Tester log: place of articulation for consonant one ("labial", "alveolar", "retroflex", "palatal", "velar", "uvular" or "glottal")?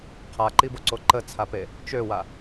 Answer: uvular